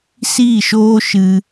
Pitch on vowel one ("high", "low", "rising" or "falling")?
falling